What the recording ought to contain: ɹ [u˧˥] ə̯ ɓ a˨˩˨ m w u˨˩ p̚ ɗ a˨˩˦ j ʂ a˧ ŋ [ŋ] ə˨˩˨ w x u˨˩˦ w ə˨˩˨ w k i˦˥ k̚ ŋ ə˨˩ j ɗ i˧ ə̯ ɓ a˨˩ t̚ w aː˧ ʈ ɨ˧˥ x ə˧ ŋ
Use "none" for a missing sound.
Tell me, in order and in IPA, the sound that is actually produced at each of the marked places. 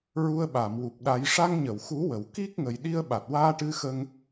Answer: u˧, ɲ

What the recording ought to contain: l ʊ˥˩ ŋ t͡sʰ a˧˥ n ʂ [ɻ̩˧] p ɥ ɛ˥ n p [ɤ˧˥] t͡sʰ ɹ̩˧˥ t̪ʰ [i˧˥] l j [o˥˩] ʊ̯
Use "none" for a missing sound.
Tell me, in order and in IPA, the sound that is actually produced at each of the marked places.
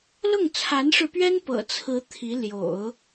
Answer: ɻ̩˧, ɤ̰˨˩, i˧˥, o̰˨˩˦

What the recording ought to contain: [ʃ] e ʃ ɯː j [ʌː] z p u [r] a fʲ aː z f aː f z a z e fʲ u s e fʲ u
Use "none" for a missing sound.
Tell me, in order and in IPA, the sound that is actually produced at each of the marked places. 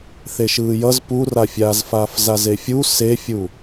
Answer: θ, ʌ, r

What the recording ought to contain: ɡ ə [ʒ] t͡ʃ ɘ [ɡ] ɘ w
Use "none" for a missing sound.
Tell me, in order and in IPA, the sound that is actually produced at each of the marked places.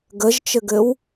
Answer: ʒ, ɡ

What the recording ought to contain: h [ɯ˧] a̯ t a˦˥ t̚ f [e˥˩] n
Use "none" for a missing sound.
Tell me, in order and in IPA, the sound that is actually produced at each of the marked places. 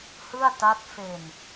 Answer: ɯ˥˩, e˧

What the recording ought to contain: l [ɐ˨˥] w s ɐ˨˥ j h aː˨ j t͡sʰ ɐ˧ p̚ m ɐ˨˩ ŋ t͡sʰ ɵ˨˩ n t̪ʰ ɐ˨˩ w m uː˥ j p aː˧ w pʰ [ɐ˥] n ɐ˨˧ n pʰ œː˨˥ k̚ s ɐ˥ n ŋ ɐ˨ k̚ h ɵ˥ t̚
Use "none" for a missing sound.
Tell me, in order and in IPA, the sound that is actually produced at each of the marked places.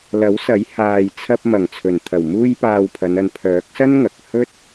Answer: ɐ˨˥, ɐ˨˧

